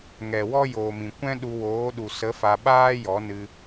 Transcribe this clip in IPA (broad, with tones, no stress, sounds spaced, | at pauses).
ŋ ɛ˨ w ɔ˦ j oː˨ m ĩ˨ kʷ ɛ̃˦ ɗ u˧ w oː˨˦ ɗ u˨ s ə˨˦ f a˧ ɓ aː˦ j ɔ˨˦ n ɨ˧